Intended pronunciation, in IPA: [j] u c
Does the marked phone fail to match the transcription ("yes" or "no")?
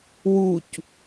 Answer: yes